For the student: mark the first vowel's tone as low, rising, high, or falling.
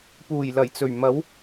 low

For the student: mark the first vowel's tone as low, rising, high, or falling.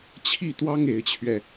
falling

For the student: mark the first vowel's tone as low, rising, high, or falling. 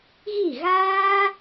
falling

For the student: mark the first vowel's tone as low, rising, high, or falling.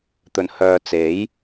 low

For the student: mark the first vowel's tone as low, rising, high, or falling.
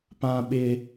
high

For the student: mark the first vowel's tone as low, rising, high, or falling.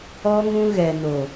high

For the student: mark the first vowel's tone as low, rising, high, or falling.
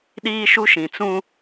high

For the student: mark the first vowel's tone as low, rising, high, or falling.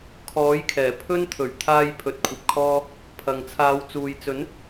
rising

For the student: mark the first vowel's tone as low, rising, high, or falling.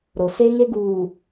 low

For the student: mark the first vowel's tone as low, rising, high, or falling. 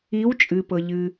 rising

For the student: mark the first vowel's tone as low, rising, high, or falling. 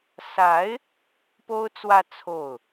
rising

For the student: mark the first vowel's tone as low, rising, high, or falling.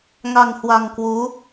low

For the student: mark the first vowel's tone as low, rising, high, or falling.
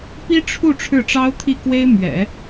high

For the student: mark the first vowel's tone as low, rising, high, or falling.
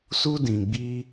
high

